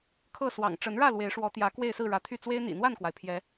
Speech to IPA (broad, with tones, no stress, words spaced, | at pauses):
kʰɤ˥˨swɑ̰˨˩ŋ ʈ͡ʂə˨˦nɻä˥˨ lwe˨˦ɪ̯ʂwɔ˨˦t̪jä˨˦ kwe˥˨ɪ̯sɹ̩˥˨ɻä˨˦t̪ʰy˥˨ t͡swe˦ɪ̯n̪ḭ˨˩n̪wa˥˨nkwa˩ɪ̯ pʰjɛ˨˦